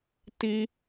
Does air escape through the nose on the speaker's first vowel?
no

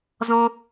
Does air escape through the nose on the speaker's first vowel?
yes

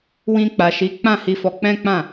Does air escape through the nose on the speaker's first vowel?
yes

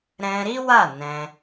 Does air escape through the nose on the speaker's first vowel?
yes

